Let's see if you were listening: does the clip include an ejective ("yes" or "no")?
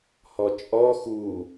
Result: yes